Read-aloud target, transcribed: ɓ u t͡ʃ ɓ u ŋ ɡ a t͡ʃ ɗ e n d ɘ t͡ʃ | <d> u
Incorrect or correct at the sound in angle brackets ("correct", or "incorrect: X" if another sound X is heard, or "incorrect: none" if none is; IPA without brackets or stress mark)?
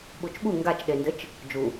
incorrect: d͡ʒ